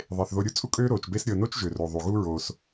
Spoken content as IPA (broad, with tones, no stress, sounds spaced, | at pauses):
ðˤ e˩ θ ð o˨ ɾʲ u˥ t͡sʼ u˦ kʼ øː˦ ɾ oː˩ t͡ʃ b e˦ s ɾʲ ɤ˨ n o˥ t͡ʃ ʒ ø˩ r o˩ ðˤ u˩ ɣ u˦ ɹ oː˨ s